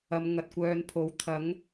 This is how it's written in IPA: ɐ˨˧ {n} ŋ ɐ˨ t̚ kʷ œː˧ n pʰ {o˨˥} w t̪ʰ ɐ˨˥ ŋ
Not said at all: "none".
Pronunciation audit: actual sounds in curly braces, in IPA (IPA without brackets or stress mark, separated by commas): m, o˨˥